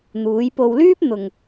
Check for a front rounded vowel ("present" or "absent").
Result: present